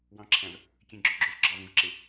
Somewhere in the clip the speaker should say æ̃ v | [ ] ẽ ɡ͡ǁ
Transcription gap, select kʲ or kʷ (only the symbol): kʲ